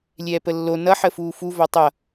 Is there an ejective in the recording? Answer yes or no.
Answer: no